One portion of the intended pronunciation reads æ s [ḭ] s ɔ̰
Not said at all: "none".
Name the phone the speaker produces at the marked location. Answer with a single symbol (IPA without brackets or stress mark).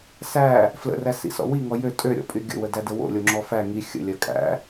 ḭ